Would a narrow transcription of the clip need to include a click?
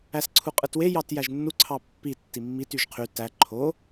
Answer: yes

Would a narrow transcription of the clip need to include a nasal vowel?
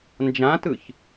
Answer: yes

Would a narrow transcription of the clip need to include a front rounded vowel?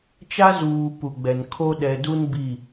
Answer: no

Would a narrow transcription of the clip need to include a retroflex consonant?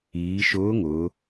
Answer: no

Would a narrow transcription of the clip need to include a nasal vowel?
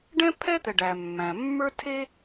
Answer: yes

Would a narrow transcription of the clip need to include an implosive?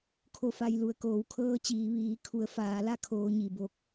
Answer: no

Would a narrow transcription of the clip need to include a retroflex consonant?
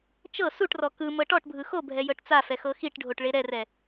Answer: yes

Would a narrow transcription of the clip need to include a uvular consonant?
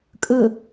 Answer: no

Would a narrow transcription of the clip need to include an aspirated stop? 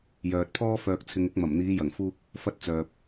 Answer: yes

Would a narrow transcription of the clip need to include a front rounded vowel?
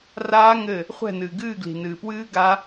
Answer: no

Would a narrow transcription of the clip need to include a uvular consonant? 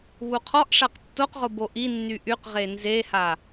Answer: yes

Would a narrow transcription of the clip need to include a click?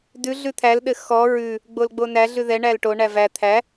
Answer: no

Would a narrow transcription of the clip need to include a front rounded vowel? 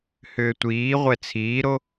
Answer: yes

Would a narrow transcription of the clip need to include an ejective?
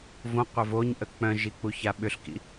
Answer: no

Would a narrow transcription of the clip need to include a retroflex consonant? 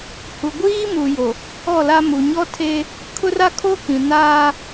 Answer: no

